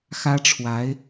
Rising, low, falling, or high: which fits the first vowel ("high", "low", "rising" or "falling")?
high